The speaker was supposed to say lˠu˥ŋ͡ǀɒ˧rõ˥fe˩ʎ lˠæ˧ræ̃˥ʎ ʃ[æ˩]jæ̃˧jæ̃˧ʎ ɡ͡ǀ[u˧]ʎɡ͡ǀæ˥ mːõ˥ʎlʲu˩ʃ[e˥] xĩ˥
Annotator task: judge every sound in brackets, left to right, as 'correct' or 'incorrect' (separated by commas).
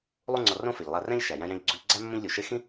correct, correct, correct